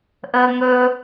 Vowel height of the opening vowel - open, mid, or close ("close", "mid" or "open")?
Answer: mid